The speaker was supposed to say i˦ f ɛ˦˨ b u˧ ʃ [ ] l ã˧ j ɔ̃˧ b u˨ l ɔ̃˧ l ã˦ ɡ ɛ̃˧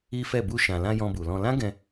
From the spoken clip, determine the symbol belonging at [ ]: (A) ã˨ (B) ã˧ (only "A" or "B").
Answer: A